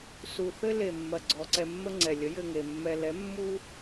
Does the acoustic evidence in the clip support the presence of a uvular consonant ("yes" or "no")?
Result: no